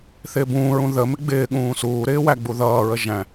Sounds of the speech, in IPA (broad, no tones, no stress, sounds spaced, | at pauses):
θ ɪː b ũː ɹ ũ ð ə m ɪ ɡ͡b ɪː ɠ ũː s uː ɾ ɪː w æ ɡ͡b u ð ʌː ɹ ə ʒ æ̃